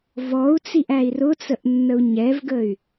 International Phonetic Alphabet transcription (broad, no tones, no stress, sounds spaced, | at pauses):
v ɔ u̯ t͡s i ʔ æ i̯ r ʊ t͡s ə ʔ nː ə u̯ ɲ ɛ v ɡ ə y̯